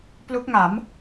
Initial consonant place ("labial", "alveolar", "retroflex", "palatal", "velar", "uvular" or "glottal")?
labial